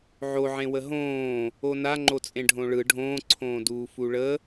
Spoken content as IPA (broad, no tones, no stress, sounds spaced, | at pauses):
ʕ o ʕ ẽ w ə ɦ õː | o n a ŋ͡ǃ o t͡sʼ ẽ ɖʱ õ ɭ ɯ ɖʱ õː ǀʰ õː d uː f u ɭ ə